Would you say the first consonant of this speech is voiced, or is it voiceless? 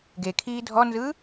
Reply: voiced